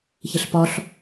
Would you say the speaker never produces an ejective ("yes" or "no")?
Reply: yes